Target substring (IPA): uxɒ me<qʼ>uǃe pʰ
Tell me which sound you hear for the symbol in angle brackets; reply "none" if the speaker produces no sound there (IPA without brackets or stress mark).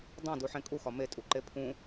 tʼ